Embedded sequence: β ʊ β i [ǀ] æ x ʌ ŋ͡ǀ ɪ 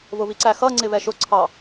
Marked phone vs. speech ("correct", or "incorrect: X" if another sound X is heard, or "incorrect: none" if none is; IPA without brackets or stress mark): correct